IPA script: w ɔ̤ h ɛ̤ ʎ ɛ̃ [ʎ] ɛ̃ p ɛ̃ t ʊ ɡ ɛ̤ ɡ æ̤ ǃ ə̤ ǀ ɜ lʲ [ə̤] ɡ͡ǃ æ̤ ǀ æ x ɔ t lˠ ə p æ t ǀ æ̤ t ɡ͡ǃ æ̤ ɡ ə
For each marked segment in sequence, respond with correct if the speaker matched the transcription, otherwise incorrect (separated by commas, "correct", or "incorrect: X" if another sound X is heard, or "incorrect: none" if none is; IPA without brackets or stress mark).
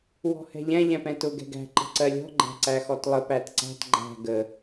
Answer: correct, incorrect: ɔ̤